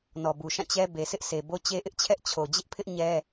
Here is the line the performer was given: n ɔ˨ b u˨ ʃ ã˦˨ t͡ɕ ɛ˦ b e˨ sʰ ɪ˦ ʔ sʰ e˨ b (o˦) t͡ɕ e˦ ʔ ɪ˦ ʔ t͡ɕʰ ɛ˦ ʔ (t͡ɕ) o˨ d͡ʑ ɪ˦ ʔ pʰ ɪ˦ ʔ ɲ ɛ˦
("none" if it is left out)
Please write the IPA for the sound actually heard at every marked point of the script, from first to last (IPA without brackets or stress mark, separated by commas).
o˦, t͡ɕʰ